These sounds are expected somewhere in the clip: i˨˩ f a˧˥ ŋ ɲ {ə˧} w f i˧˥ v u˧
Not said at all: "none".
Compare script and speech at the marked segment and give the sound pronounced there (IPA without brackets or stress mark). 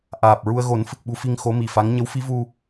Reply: ə˧˥